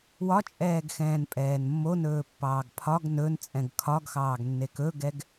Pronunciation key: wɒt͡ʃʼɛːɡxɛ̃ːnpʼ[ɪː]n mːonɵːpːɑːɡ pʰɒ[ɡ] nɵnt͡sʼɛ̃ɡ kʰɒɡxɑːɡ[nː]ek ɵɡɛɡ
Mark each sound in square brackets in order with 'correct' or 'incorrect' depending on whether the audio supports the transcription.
incorrect, correct, correct

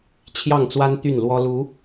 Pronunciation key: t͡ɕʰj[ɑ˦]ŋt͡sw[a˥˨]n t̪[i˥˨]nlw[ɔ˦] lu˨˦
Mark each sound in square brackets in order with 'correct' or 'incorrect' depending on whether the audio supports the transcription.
incorrect, incorrect, incorrect, correct

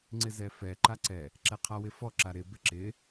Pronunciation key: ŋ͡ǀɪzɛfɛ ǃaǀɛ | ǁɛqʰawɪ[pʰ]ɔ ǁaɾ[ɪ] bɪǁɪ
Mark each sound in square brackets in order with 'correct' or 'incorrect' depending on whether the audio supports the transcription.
incorrect, correct

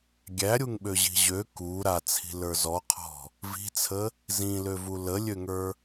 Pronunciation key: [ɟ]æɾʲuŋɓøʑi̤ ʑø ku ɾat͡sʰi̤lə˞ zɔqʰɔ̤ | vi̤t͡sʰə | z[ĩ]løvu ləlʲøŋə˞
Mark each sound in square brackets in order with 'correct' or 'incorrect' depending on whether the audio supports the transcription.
incorrect, correct

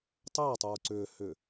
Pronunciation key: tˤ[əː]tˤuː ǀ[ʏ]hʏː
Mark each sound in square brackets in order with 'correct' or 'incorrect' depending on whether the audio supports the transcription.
correct, incorrect

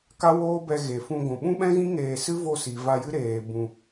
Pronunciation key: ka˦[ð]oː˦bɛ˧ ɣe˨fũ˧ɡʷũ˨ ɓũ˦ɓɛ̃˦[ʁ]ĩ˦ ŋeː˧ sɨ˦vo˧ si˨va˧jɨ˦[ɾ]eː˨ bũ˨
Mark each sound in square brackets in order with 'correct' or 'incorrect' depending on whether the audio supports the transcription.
incorrect, incorrect, correct

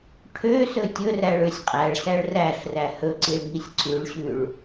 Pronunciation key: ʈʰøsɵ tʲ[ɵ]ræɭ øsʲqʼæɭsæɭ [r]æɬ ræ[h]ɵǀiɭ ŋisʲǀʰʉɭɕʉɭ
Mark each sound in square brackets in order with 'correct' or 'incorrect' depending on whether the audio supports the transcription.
correct, correct, correct

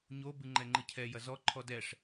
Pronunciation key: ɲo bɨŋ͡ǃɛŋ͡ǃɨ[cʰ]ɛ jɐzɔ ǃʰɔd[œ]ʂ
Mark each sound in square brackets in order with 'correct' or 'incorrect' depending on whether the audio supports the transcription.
correct, incorrect

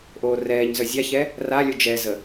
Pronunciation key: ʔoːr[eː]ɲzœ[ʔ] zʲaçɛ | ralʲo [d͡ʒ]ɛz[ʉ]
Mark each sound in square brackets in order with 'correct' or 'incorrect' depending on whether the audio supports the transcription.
incorrect, incorrect, correct, incorrect

